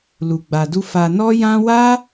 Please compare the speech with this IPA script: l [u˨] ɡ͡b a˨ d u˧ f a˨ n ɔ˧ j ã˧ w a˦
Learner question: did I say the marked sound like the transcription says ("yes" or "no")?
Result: yes